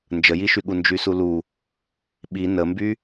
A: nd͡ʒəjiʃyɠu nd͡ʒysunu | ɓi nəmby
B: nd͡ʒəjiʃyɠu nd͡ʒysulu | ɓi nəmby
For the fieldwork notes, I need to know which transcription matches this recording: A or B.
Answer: B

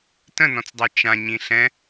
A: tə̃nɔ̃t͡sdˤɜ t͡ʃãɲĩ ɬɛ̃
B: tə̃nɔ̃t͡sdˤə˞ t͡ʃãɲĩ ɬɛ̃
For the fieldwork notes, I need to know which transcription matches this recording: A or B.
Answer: A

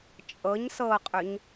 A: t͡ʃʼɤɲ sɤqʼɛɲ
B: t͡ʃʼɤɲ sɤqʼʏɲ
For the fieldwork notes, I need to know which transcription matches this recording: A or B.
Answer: B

